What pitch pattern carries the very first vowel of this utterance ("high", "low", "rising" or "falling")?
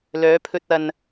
rising